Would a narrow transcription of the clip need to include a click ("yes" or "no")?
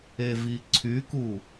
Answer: yes